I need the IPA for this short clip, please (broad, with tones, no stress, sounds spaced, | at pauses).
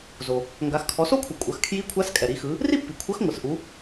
z o˩ | ŋ ɡ a˩˧ x kʰ ɔ˩˧ s o˥ kʷʰ ɯ˩ kʷʼ ɐ˩˧ x kʰ j i˧˥ kʷʰ a˧˥ s kʼ ɛ˩ ɾ i˩˧ x ɯ˩˧ | r i˥ pː i˩ kʷʰ ɐ˧˥ x ŋʷ ɯ˩ s ʔ u˩˧